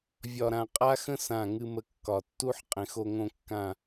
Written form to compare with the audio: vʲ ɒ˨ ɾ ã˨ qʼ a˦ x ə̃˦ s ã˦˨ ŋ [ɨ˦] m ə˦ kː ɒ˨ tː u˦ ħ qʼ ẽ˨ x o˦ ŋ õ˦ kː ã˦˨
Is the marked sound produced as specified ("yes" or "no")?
yes